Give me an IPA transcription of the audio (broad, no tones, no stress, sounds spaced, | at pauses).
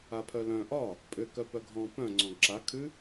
a pʰ œ l œ̃ ʔ ɒ | pʼ ʏ k œ p œ ɡʱ ɔ̃ p œ̃ ŋ͡ǀ ɔ̃ ɡ ǁ a kʰ ʉ